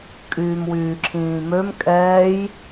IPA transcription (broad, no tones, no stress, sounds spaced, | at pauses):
kʼ yː m w yː ǁʰ ĩː m ø m kʼ ɛː j